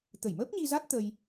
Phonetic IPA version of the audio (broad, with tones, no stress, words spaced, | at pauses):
t̪ə˧˩jməː˦˥p̚ɲi˧za˦˥t̚ t̪ə˧j